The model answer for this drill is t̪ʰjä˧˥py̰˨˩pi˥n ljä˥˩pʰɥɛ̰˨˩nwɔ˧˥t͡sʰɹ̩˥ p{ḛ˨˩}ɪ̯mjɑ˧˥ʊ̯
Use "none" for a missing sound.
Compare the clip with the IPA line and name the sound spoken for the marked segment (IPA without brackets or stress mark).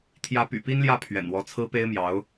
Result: e˥